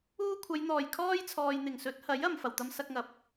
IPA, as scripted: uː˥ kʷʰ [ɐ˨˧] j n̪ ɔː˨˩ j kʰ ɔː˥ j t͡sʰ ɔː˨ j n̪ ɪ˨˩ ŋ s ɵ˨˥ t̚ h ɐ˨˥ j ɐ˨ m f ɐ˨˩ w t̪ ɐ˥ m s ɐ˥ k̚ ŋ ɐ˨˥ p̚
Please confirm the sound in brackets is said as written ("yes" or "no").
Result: yes